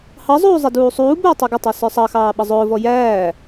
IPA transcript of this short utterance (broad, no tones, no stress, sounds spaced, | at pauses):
h ɑ zˤ uː zˤ ɛ d uː sˤ uː b ʊː tˤ ɛ ɡ ɪ tˤ æ s ə˞ sˤ ɑ x ɑː ɓ ʌ zˤ ʊː v ɔ j æː